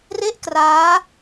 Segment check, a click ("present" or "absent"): absent